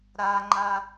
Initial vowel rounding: unrounded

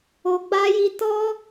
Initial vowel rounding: rounded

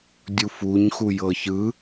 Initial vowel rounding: rounded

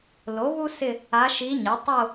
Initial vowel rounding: rounded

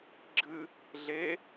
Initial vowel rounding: unrounded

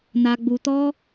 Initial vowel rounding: unrounded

